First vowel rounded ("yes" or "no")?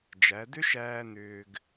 no